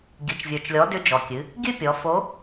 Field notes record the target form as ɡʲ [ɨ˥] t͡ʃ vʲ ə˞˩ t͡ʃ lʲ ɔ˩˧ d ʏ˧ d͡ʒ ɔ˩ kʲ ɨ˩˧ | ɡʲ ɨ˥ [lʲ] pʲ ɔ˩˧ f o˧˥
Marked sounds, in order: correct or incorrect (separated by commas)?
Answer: incorrect, incorrect